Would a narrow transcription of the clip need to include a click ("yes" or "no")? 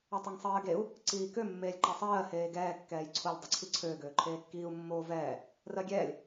yes